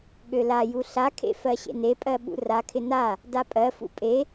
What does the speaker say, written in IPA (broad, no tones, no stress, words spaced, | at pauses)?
ɠølaju ɬakʰḛ fɜɕḛnepʼɜ ɓṵrakʰɪ na | dapʼɜfṵ pʼe